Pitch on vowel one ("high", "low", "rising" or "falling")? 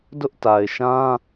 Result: high